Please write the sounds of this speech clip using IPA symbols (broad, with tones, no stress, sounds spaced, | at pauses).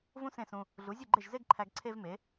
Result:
v ũ˥ s ẽ˥˩ s ũ˧ | ɮ u˩˥ zʲ u˥˩ ɡ͡ǃ e˥˩ ʒ z e˥ ɡ ǃʰ æ˧ ɡ ǀʰ e˥ v m e˩˥